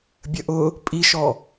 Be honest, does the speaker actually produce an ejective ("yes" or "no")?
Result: yes